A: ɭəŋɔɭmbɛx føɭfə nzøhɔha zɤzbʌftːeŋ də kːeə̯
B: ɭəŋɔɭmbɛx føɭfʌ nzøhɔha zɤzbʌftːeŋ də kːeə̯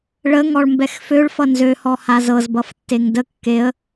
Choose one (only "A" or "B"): B